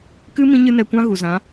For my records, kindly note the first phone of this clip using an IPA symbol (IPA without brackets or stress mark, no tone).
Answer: k